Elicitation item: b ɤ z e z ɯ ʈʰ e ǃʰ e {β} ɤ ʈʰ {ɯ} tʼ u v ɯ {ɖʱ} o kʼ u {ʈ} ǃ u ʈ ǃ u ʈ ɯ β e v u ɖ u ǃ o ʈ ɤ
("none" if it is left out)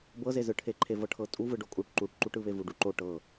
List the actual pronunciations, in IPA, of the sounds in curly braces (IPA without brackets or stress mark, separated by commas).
v, ɤ, ɖ, ʈ